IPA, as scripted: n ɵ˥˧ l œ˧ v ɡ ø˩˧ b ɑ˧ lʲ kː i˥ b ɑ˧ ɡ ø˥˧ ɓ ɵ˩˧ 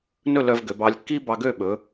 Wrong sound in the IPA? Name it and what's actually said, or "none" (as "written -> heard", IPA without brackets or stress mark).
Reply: none